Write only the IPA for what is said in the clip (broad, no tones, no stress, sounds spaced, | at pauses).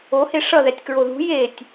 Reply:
o h e ʂ ʌ ð ɛ tʲ k ɹ o ð ṳ j e tʲ